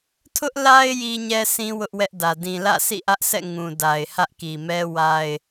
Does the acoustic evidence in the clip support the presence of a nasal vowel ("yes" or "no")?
yes